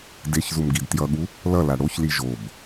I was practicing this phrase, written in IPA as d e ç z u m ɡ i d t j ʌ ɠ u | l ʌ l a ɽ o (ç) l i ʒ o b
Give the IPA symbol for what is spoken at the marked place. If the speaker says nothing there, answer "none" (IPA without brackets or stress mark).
ç